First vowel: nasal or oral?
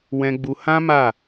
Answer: nasal